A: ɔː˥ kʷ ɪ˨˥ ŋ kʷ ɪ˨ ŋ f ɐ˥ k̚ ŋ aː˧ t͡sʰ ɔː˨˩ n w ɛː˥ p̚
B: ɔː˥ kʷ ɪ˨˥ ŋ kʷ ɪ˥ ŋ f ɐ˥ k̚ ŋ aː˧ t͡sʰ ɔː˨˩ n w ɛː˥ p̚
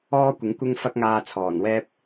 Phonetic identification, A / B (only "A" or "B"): B